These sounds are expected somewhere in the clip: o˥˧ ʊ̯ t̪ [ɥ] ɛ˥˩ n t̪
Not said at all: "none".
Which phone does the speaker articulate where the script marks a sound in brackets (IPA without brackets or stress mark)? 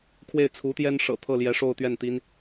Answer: ɥ